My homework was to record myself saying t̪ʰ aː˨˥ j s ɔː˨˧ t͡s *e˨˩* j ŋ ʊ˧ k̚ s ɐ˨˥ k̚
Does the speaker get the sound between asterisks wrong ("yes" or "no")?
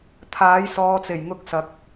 no